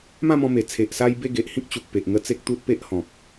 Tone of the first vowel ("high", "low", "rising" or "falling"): falling